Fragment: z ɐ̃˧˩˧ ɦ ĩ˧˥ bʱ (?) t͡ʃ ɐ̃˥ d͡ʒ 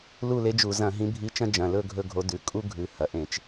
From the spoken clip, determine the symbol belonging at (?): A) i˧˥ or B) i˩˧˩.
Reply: A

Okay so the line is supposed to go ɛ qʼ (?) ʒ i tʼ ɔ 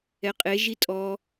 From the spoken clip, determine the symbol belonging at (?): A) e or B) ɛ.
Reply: A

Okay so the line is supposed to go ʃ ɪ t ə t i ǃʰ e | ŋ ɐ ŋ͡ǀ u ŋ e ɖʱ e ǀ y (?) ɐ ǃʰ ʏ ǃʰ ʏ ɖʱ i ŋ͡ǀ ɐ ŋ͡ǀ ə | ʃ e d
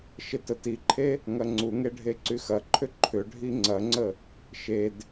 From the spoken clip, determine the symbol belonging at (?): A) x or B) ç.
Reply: A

